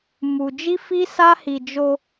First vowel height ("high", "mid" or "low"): high